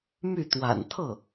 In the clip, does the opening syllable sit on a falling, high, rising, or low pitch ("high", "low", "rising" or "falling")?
falling